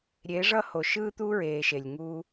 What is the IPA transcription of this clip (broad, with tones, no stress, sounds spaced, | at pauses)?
ɾʲ e˨˦ ʐ ʌː˦ h o˨ ʃ ɯː˦ t̪ uː˦ ɹ eː˨ ʃ e˨ lʲ ŋ uː˦